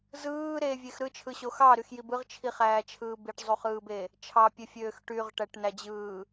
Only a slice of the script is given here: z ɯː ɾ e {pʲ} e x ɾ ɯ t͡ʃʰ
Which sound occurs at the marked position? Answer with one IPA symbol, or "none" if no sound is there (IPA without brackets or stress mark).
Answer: vʲ